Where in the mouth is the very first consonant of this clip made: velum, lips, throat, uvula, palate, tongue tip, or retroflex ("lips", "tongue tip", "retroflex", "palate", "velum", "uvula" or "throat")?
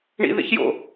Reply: retroflex